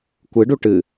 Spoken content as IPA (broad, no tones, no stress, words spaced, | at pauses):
kʷɨɖu ʈɨ